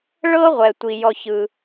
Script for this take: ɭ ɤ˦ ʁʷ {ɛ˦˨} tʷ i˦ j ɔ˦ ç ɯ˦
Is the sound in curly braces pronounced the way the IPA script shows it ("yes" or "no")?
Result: yes